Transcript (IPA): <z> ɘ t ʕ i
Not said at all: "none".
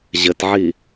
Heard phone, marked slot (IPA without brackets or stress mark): ʑ